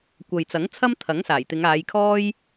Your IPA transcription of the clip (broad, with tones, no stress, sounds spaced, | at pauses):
kʷ ɐ˨ j t͡s ɐ˨˥ ŋ t͡sʰ ɐ˥ m t̪ʰ ɐ˨˥ ŋ s aː˨˩ j t̪ ɪ˨˧ ŋ aː˨˧ j kʰ ɔː˥ j